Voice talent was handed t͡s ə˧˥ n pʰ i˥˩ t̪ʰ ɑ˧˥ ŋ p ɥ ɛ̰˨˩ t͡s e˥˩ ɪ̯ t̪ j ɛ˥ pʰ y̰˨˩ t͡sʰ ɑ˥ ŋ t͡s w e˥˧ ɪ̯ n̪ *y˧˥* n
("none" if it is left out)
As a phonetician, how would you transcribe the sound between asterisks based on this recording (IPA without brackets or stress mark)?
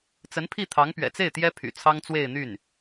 y˥˩